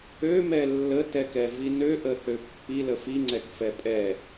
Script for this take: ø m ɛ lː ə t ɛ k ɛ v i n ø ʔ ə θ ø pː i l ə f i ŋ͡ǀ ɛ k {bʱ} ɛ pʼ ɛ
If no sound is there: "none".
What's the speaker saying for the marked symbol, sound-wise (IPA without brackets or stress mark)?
f